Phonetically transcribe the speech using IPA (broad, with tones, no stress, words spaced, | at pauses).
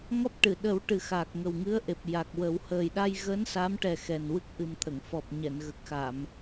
ŋɔ˦˥p̚ʈɨ˨˩˨ ɗə˨˩˦w ʈɨ˨˩xaː˨˩k̚ŋə˨˩w ŋɨ˧˥ə̯ʔe˨˩p̚ ja˨˩k̚wə˨˩˦w həː˨˩jɗa˧j ɣəː˧˥nsa˧˥mʈɛ˨˩ xɛ˨˩nwɨ˦˥k̚ʔɨ˨˩mt̪ʰə˨˩˨ŋ fɔ˨˩p̚ɲɛ˨˩˨nɣə˨˩k̚xa˨˩˨m